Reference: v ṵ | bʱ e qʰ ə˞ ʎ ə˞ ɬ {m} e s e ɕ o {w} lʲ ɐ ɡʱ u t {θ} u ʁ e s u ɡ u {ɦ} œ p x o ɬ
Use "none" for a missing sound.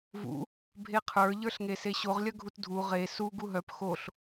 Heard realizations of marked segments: ŋ, ʁ, dʱ, ɦ

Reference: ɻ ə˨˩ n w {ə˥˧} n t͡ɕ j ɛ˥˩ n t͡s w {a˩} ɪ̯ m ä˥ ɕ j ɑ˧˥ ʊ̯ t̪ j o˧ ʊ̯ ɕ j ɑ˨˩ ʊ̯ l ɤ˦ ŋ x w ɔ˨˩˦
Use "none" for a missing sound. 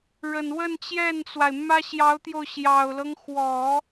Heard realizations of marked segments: ə˥˧, a˩

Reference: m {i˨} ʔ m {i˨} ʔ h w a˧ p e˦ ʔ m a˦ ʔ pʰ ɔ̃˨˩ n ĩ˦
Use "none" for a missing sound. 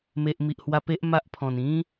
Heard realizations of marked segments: e˨, i˨

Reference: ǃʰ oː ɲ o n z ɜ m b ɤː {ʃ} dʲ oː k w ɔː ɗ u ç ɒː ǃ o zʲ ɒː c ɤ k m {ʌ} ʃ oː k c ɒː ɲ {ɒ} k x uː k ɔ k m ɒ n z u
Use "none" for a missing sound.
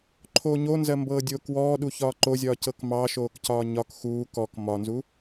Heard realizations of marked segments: none, ɑ, ɒ

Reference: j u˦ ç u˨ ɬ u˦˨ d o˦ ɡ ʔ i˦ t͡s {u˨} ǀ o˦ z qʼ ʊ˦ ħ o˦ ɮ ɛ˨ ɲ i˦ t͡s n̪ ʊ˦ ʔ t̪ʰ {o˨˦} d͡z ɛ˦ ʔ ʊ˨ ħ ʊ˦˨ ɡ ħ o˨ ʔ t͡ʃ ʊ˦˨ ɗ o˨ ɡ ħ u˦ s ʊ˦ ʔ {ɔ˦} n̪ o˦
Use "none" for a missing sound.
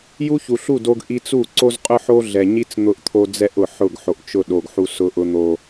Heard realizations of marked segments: u˦˨, o˦, ʊ˦

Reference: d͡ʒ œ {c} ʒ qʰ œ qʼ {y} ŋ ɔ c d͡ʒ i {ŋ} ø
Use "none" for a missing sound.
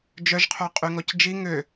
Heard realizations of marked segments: none, y, ŋ

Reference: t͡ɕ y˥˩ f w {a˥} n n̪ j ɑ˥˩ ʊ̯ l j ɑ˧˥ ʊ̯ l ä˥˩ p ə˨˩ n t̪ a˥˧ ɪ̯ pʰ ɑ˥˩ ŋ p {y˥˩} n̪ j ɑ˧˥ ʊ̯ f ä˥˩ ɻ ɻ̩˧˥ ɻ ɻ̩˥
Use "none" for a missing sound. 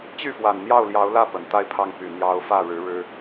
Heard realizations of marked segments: a˨˩, y˨˩

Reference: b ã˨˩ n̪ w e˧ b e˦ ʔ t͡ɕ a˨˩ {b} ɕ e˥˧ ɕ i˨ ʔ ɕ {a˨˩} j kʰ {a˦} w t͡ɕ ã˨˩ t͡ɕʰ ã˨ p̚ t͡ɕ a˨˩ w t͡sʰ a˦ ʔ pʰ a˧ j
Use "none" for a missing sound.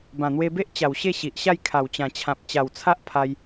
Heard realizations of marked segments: w, a˥˧, a˨˩

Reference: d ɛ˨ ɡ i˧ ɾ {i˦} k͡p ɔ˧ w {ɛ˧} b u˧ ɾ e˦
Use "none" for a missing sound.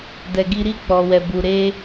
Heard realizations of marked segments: i˦, ɛ˧

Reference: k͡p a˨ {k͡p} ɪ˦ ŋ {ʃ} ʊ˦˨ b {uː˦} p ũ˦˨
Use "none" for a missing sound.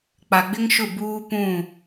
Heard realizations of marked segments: ɡ͡b, ʃ, uː˦

